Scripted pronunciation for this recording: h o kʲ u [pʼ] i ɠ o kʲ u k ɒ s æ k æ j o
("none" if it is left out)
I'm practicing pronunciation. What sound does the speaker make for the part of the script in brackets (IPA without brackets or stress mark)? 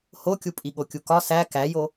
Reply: pʼ